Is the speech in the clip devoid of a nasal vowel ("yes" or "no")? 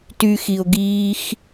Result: yes